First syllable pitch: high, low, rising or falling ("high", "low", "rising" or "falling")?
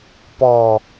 low